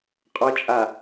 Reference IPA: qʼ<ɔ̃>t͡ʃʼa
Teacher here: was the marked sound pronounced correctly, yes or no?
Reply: no